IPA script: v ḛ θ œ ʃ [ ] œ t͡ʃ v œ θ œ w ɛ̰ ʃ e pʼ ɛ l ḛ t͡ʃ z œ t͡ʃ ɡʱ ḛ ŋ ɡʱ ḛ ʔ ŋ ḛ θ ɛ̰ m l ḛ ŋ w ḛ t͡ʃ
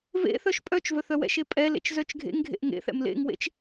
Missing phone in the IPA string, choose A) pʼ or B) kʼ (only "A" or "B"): A